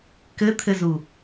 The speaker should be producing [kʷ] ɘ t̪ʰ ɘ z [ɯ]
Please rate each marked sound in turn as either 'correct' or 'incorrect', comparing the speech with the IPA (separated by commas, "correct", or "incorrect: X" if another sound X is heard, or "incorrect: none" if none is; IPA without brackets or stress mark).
incorrect: k, incorrect: u